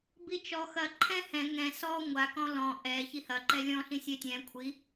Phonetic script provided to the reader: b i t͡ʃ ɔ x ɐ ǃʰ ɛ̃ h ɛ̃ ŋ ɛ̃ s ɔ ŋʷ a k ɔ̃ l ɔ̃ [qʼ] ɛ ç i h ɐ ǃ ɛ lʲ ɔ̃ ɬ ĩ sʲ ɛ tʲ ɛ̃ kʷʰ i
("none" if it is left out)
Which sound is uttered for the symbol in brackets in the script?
ʔ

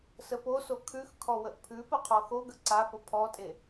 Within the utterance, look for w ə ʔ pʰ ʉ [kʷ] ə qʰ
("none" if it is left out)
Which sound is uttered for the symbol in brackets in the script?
p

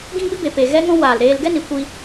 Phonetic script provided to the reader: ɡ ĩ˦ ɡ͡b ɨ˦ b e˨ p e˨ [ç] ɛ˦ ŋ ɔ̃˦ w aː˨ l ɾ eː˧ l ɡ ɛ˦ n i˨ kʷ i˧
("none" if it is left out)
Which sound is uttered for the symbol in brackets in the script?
ɣ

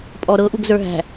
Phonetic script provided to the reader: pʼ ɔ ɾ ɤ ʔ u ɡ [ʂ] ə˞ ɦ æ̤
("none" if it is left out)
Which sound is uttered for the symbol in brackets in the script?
z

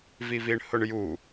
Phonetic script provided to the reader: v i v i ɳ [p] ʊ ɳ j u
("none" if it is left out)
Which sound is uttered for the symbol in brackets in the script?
h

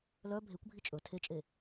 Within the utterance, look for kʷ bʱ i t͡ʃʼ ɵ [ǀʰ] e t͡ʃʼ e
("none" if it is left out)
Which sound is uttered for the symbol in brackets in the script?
tʰ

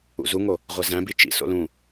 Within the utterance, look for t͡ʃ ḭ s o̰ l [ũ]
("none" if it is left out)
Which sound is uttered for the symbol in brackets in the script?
ũ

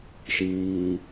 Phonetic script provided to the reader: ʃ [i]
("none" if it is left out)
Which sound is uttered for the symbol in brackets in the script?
iː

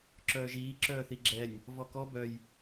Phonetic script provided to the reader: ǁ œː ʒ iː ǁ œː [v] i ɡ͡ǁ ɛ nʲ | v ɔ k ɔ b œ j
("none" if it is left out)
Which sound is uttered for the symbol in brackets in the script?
θ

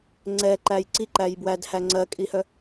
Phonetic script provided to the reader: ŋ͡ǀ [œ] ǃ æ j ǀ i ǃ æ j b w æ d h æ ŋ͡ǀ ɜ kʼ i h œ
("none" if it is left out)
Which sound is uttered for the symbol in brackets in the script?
ɛ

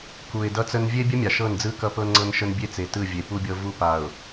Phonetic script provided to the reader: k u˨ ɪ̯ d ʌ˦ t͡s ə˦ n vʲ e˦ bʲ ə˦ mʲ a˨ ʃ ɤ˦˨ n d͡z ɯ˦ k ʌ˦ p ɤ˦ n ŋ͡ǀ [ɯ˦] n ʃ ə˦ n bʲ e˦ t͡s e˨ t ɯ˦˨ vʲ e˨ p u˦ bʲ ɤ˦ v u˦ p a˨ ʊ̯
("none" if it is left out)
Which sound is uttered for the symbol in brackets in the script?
ɤ˦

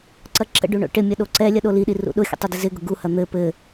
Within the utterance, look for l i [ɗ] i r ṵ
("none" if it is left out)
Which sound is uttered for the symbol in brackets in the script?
ɗ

